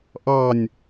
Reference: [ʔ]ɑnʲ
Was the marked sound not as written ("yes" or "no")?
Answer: no